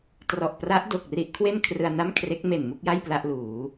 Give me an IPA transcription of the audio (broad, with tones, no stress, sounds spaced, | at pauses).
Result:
t r ɔ˨˩ ʔ p r a˦˥ ʔ d o˨˩ k̚ r i˦˥ ʔ kʰ w e˥˩ n kʰ r ɯ˧ a̯ n a˥˩ m kʰ r e˦˥ k̚ m e˨˩ n m u˥˩ k̚ j a˥˩ j p l a˥˩ ʔ l uː˩˦